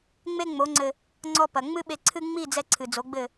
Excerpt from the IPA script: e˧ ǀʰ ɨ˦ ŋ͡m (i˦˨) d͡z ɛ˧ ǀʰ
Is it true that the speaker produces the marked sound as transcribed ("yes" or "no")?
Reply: yes